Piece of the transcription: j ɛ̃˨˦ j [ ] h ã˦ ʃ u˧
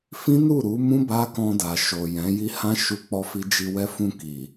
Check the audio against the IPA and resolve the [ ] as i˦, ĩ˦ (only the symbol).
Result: i˦